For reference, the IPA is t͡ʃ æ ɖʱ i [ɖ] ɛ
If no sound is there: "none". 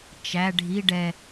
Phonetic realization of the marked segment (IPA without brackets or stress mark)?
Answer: ɖ